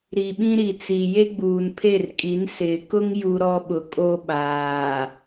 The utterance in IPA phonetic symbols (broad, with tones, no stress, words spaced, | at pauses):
ɾi˨ɓĩ˦ɾi˨t͡si˨ je˦ɡ͡buː˨npʰe˦˨rkʼi˨˦n sɪ˨kʊ˦ŋ ju˦ɾɔ˦ ɓʊ˨kʼo˦ɓaː˨